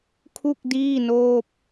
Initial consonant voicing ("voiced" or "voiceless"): voiceless